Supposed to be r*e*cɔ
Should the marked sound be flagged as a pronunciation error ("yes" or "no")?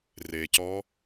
no